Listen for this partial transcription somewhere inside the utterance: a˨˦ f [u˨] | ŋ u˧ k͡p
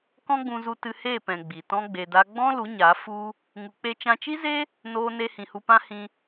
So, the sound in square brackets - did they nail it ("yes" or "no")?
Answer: no